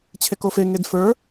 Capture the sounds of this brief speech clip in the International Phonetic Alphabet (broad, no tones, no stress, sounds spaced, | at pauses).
t͡ɕʰ e k o f e ŋ e d f ə˞